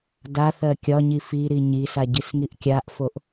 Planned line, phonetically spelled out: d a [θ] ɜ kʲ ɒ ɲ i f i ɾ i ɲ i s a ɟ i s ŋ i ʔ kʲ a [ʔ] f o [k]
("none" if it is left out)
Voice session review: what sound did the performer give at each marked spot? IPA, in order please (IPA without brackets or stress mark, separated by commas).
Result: θ, ʔ, ʔ